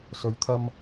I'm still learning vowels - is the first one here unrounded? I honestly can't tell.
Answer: no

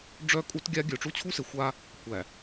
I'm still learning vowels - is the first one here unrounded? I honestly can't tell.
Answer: no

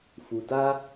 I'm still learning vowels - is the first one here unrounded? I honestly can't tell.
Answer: no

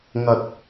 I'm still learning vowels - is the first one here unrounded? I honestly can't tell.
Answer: yes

